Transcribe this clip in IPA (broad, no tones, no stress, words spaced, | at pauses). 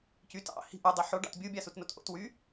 cyt ɑ̰ hi̤ʔu dˤiħoɖɑ̰t bʲubʲɑsutnot ʔo̰twy